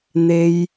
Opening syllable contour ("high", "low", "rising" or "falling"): low